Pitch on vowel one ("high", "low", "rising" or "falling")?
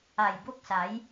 low